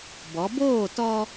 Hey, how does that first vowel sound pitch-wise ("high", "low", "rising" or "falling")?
rising